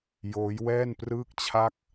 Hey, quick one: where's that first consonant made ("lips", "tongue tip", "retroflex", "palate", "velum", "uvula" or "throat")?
palate